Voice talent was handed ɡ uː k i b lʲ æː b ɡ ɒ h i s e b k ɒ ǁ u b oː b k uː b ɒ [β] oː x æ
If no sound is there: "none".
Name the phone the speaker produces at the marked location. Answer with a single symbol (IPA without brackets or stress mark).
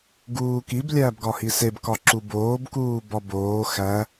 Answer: b